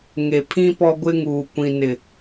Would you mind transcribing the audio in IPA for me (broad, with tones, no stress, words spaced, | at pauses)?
ŋe˨pʰĩ˦ pɔ˦ɡʷɪ˦ŋuː˨ kʷĩ˨nɪ˨